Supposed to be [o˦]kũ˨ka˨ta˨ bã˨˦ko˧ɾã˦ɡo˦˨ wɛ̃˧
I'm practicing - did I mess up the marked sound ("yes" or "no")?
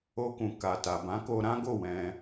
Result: yes